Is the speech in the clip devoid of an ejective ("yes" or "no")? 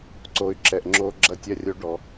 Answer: yes